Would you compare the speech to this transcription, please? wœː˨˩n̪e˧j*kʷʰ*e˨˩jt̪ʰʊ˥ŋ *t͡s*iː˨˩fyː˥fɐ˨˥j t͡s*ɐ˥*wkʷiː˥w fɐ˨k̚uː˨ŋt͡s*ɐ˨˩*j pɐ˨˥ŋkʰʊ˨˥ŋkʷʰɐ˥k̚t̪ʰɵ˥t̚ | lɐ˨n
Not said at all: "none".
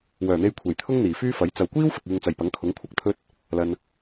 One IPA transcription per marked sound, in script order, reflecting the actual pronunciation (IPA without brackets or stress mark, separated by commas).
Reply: kʷʰ, n̪, ɐ˨, ɐ˨˩